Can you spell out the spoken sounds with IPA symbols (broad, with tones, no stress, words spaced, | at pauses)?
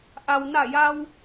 ʔa˩wna˧˩ja˧w